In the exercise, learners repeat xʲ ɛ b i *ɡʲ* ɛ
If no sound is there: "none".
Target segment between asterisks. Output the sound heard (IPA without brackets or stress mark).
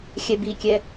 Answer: kʲ